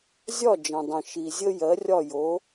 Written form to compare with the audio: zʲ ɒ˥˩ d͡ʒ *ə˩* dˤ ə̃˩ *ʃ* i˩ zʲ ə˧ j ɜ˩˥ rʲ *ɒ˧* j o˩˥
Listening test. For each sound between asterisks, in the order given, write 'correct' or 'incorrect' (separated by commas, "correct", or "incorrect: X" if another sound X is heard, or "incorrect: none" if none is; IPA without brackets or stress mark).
incorrect: ə̃˩, correct, incorrect: ɒ˥˩